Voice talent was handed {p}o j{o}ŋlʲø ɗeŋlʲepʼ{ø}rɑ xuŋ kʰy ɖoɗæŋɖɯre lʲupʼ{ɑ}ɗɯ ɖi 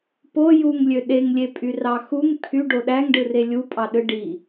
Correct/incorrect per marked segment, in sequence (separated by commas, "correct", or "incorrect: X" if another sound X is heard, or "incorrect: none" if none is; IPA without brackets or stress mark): correct, incorrect: u, incorrect: y, correct